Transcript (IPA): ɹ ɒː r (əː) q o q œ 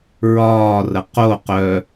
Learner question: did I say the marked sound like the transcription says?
no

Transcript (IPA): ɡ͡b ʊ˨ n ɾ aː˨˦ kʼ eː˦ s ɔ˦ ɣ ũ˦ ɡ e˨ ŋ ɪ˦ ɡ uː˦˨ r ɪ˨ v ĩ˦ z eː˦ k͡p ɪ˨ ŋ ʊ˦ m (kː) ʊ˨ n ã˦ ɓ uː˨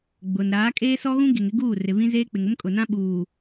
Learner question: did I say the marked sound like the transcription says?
no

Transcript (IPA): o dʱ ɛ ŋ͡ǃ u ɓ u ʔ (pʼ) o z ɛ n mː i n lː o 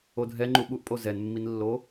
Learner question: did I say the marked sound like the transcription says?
yes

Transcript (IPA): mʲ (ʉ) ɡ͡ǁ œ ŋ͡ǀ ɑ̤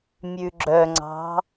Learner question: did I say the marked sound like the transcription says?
yes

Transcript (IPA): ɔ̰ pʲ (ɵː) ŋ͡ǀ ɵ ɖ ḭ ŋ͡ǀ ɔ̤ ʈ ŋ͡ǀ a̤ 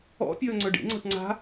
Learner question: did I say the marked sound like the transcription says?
yes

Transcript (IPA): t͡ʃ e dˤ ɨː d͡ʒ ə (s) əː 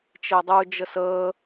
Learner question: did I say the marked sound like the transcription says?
yes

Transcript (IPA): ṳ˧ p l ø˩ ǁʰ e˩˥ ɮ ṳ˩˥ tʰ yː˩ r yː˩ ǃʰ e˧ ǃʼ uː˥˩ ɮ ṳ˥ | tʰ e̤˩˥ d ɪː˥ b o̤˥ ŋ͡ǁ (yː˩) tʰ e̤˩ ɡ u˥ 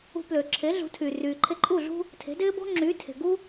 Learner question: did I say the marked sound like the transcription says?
no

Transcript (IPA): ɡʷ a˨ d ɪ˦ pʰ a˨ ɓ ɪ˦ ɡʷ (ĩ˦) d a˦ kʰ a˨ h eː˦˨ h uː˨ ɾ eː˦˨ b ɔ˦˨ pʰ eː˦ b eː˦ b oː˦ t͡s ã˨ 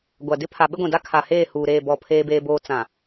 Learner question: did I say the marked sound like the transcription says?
no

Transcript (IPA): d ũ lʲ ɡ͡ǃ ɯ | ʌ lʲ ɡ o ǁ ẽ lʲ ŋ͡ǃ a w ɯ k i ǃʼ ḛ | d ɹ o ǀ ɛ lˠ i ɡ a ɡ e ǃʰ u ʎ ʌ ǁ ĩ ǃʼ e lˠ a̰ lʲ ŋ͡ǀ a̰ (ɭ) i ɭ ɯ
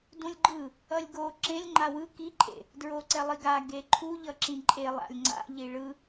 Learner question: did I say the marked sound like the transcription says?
no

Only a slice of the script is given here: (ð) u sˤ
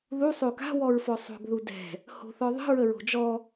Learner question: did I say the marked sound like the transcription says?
yes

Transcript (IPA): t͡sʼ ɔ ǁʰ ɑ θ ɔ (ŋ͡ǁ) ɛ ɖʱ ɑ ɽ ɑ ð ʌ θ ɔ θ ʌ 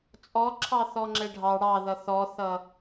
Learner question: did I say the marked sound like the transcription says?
yes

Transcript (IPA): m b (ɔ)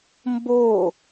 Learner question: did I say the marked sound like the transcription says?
no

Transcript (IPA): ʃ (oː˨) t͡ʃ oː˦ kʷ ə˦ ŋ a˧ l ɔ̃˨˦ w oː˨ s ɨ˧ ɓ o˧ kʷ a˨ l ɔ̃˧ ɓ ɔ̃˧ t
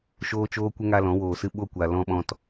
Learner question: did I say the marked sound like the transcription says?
no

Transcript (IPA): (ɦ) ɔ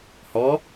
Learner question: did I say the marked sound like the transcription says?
no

